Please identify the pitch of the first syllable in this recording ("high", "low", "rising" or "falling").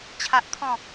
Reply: high